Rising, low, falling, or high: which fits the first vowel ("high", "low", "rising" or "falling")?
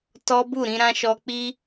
high